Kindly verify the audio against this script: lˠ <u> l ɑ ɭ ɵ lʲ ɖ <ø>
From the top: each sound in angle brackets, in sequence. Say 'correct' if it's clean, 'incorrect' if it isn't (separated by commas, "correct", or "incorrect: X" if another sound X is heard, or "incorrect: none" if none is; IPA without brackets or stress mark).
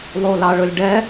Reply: incorrect: o, incorrect: ɛ